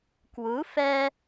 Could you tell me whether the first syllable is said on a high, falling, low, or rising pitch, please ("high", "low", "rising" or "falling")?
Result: rising